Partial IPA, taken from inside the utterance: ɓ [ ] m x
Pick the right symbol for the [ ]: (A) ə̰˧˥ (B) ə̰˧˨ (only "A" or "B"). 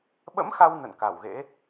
A